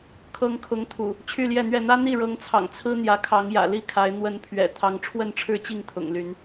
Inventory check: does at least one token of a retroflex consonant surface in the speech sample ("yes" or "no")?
yes